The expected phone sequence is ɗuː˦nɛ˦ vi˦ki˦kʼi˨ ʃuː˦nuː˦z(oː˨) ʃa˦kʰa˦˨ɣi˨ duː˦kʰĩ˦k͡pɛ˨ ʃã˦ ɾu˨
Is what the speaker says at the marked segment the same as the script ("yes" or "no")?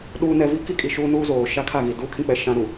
yes